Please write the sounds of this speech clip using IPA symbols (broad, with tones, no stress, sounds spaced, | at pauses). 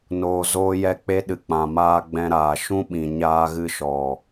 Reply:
n oː˨ z oː˧ j ɛ˧ k͡p e˧ ɗ ɨ˨ k͡p ã˨ m aː˧ ɡ͡b ɛ̃˧ ɾ aː˨ ʃ ũ˦ ɓ ĩ˨ ɲ aː˧ ɣ ɨ˧ ʃ ɔ˨